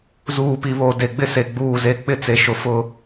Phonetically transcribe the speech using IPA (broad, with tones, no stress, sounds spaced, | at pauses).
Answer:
z uː˨ p i˨ β o˨ d e˨ ɡ͡b ɪ˦ s e˨ ɡ͡b uː˦˨ z e˦ k͡p ɪ˦ t͡s e˨ ʃ ʊ˨ f ʊ˦